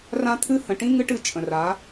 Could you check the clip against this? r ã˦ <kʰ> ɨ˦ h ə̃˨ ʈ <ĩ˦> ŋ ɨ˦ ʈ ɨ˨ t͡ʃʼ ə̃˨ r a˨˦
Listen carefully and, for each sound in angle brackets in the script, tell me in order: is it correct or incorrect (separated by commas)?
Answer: incorrect, correct